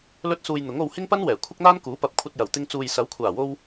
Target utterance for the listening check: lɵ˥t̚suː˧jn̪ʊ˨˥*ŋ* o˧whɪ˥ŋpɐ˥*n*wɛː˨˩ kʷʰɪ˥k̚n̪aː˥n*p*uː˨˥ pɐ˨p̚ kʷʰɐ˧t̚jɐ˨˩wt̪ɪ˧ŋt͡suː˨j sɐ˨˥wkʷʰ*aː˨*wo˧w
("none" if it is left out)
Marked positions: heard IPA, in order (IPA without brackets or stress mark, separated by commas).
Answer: ŋ, n, k, aː˨˩